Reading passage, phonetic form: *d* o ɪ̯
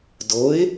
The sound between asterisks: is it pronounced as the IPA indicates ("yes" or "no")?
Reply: yes